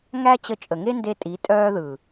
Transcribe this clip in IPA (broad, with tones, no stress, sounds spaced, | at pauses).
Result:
ŋ æ˦ t͡ɕ ə˧ t͡ʃʼ ə˨ ŋ e˦ n d e˧ tʼ i˨˦ tʼ œː˧ ð ɯ˨